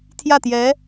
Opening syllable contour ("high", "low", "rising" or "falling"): falling